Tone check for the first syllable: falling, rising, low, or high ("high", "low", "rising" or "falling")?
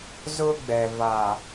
high